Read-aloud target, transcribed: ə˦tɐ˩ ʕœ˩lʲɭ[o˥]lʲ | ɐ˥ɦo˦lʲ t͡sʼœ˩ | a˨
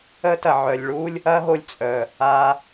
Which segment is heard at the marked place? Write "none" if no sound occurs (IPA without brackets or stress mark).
u˥